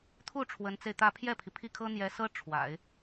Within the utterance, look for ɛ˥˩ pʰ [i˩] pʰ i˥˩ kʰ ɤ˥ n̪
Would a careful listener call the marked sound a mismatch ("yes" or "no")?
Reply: no